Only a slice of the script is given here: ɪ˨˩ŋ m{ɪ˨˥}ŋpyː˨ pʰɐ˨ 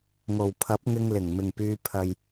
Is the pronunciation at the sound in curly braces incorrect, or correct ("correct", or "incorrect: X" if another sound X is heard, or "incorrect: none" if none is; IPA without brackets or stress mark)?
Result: incorrect: ɪ˨˩